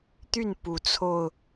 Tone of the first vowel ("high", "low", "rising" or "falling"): falling